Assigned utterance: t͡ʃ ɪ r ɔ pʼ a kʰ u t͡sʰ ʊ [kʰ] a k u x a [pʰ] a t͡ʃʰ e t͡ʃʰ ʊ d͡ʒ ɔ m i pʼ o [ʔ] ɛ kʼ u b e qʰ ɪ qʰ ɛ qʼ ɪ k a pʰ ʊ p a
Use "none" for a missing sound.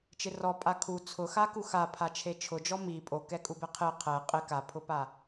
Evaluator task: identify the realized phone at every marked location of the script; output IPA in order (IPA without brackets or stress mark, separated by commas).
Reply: x, pʰ, k